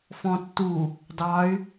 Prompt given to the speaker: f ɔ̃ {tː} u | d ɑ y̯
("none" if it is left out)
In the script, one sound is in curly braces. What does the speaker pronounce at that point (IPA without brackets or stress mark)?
tː